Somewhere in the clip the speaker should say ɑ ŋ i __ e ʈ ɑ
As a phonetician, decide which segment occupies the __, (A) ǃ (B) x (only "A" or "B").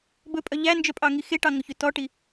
B